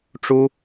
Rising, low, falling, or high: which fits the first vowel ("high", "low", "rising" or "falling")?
high